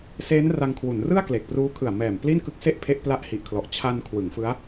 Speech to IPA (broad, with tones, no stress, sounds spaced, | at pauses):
s eː˦˥ n r a˧ ŋ kʰ w u˩˦ n r ɯ˥˩ a̯ k l e˨˩ k̚ p r uː˦˥ kʰ ɯ˨˩ a̯ m ɛː˨˩ m p l i˥˩ n k ɯ˦˥ k̚ s e˥˩ ʔ pʰ e˦˥ ʔ p l a˦˥ ʔ h i˨˩ ʔ kʰ l ɔ˨˩ ʔ t͡ɕʰ a˧ n kʰ w ɯ˩˦ ŋ f ɯ˦˥ a̯